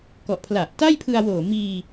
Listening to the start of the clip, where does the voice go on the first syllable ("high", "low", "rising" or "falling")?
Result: low